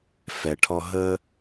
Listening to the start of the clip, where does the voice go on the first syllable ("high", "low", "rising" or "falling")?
low